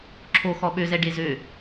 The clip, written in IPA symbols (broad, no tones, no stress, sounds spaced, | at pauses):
ǁʰ o x ɔ ɓ ø z ɛ ɖ e z ø